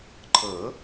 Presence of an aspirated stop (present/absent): present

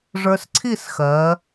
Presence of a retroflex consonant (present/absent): present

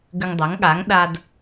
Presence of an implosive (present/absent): present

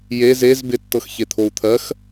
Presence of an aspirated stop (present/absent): present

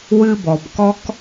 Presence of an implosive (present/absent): absent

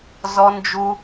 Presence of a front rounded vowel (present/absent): absent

